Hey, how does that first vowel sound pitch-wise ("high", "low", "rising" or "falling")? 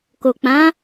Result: low